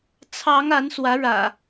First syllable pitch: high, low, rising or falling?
rising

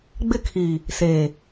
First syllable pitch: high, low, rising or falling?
falling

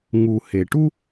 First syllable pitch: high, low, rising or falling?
low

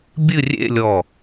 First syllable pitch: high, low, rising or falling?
falling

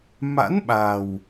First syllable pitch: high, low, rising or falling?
rising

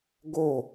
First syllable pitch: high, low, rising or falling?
falling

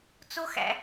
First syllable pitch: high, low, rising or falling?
high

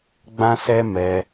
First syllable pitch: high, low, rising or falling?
high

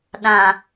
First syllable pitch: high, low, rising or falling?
low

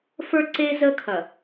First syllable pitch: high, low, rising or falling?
high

